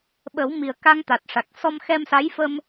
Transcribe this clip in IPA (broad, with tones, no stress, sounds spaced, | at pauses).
ɓ ə˨˩˦ w m i˨˩ ə̯ k a˧ ŋ t̪ a˨˩ t̚ ʂ a˨˩ k̚ s ɔ˧ m x ɛ˧ m s a˧˥ j f ə˧ m